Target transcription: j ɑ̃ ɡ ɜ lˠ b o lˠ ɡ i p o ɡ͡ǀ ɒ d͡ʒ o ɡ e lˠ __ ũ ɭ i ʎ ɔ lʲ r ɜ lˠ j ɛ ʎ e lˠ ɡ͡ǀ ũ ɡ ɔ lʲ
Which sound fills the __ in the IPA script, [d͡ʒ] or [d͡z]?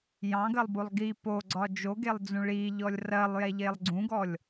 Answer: d͡z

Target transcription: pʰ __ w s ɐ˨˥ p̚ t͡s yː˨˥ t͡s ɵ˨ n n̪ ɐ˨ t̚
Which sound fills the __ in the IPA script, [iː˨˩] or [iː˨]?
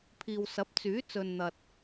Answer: iː˨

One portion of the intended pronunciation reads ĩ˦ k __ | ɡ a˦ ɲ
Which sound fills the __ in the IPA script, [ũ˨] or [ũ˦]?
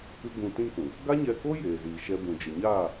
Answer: ũ˨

